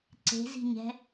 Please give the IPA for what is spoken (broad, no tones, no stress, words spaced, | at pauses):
ǀe̤zi̤ɲɛ̤